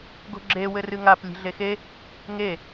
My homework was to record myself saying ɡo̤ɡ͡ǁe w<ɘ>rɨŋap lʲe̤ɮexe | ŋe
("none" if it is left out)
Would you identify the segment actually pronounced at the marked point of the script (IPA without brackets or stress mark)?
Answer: ɘ